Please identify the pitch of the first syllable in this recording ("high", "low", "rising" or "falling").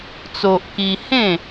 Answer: high